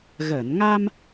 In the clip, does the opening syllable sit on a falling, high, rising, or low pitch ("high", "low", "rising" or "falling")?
low